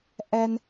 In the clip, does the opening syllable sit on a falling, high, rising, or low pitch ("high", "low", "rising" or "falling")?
high